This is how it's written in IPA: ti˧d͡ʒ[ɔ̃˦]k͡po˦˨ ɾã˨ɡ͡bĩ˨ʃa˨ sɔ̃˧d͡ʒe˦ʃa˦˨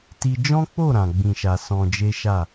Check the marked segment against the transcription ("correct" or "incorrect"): correct